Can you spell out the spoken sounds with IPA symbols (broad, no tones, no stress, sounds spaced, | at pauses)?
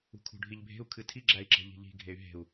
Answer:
ṳ kʰ ṳ ɖʱ i ʎ bʱ e̤ u̯ kʰ ɨ tʰ i ɡ͡ǁ æ i̯ ǁ e̤ ʎ i̤ ʎ i̤ ɡʱ e y̯ ɦ e̤ u̯